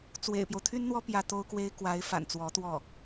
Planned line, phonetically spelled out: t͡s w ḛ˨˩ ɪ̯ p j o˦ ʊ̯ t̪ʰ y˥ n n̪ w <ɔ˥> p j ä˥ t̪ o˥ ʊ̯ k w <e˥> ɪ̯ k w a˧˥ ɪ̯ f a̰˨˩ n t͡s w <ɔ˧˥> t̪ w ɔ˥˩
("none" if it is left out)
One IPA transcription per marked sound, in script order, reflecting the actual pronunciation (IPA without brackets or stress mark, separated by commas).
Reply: ɔ˥, e˥, ɔ˧˥